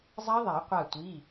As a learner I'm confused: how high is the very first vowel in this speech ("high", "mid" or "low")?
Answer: low